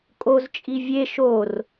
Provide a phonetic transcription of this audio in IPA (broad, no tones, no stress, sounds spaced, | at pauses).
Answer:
kʼ o z t͡ʃʼ i vʲ e ʃ o r